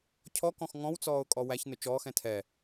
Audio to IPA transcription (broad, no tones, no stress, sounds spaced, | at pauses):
cʰ ɔ k ɔ̃ x ŋ ɔ̃ w t͡s ɔː ʊ̯ kʼ ɔ w æ ç n ʊ t͡ʃ ɔː x ɛ̃ tʰ ɛ